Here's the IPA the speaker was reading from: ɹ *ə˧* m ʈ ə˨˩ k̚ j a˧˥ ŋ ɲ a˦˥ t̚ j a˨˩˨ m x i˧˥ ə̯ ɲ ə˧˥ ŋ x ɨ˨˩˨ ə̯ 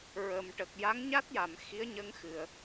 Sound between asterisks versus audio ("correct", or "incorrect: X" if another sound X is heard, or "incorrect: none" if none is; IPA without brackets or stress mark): incorrect: ə˨˩